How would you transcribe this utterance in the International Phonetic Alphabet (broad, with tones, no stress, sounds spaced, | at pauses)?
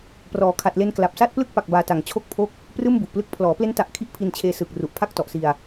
p r ɔː˩˦ kʰ a˨˩ t̚ l e˧ n k l a˨˩ p̚ s a˥˩ t̚ p l ɯ˥˩ k̚ p a˨˩ k̚ b aː˧ t a˨˩ ŋ t͡ɕʰ o˥˩ k̚ pʰ o˥˩ k̚ | p r ɯː˥˩ m b u˨˩ ʔ p l ɯ˦˥ k̚ pʰ l ɔː˩˦ p l e˦˥ n t a˨˩ ʔ kʰ i˦˥ ʔ pʰ i˧ n t͡ɕʰ eː˧ s ɯː˨˩ k̚ r u˨˩ ʔ pʰ a˥˩ k̚ t ɔ˨˩ ʔ s i˧ a̯